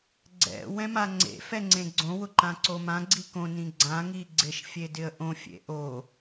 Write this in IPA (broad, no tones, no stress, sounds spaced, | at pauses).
ɡ͡ǀ ɛ̰ w ɛ̃ m a ŋ͡ǀ ḛ f ɛ ŋ͡ǀ ẽ ɡ͡ǀ õ w ʊ ǃ ã ǀ o m ã ɡ͡ǀ i k õ n ĩ ɡ͡ǀ ã ŋ i ɡ͡ǀ ɪ ʃ fʲ e d ɪ ə̯ ʔ õ fʲ ḛ ʔ o